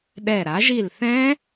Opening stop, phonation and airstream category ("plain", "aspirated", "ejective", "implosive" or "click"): implosive